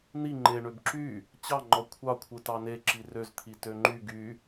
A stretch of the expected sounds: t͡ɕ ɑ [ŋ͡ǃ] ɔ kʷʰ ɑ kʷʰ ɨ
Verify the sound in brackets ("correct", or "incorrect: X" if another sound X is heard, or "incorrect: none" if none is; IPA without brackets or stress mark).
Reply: correct